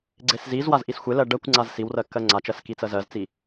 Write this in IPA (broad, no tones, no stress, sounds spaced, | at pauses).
ɡ͡ǀ e s z i z w a z ʔ i s xʷ e l ɜ ɖ ɜ kʷ ŋ͡ǀ a z s i w r ɜ kː ɜ ŋ͡ǀ a t͡ʃ ɜ s k i t͡s ɜ z ɜ z t͡s i